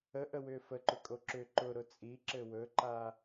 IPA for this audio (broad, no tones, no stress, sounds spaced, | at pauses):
ə ʔ ə w ʏː f ə ǃ ʏ kʼ o ǁ ʏ ǃ ʊ ɾ ʊ t͡sʼ i ǁ ɘ w ɵ ǃ a